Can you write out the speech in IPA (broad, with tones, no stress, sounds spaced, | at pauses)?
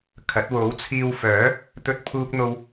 kʰ ɐ˨˥ t̚ w o˨˥ w t͡sʰ iː˧ w f œː˨˥ | t̪ ɵ˥ t̚ pʰ uː˥ k̚ n̪ o˥ w